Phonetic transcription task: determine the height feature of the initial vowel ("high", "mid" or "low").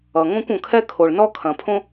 mid